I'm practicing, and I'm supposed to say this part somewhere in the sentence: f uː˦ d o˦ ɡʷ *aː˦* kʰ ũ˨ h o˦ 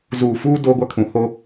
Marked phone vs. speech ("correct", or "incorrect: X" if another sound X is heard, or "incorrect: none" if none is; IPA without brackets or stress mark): incorrect: a˦